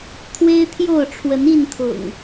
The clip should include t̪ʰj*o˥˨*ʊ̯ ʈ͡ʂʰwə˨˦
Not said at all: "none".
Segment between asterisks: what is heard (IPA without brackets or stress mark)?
o˥˨